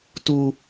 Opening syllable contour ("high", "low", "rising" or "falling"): high